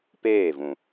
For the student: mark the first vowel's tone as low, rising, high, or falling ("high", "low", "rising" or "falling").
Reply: falling